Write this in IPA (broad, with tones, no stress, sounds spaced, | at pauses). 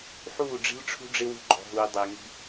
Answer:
ħ uː˦˨ ɖ͡ʐ i̤˦ l ʈ͡ʂʰ ṳ˦ ɖ͡ʐ ɪ˦ w ṳ˦ ɡ͡ǃ ɔ̤˨ ɦ uː˨ dˤ ɪː˨ ŋ i̤˦